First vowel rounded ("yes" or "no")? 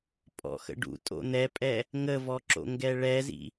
yes